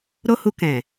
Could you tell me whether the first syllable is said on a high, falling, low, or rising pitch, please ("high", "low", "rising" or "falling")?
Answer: high